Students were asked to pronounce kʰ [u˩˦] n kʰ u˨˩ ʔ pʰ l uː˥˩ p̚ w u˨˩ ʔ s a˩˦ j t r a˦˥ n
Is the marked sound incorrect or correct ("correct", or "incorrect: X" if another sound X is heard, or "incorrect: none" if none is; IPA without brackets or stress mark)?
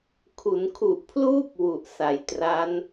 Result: correct